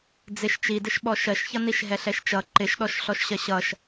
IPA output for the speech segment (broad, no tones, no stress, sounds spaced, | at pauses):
d͡z ɪ ʃ t͡ʃ i d ɪ ʃ ɓ ɔ ʃ ɜ ʃ ç ʌ n i ʃ ɦ ɛ ɬ ɛ ʃ t͡ʃ ʌ ǃ ɪ ʃ ɗ ɔ ʃ ɬ ɔ ʃ ɕ ɜ ɕ ʌ ʃ